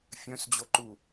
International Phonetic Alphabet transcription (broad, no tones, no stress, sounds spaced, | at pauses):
fʲ œ̃ s d͡ʑ o ǃ u